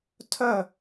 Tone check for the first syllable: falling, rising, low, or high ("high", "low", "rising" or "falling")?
falling